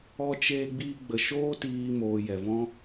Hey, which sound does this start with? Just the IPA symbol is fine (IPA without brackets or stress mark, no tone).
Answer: ɔ